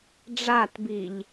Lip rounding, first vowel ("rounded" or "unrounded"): unrounded